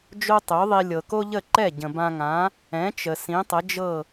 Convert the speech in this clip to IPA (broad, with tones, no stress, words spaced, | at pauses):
d͡ʒo˥tˤø˩˥ðˤi˧ lʲɤ˩ko˥ʎə˥˩ǃɛ˥˩ ɟə̃˩bã˧ŋã˩˥ | ɛ̃˩˥t͡ʃə˩ sĩ˩˥tˤə˩˥d͡ʒɤ˥˩